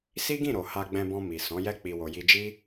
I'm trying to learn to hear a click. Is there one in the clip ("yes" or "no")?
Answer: no